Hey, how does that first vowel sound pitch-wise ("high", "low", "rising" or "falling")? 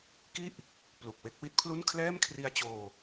falling